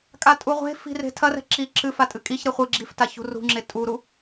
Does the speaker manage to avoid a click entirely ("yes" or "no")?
no